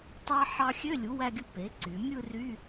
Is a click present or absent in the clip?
present